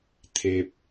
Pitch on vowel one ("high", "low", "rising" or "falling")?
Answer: low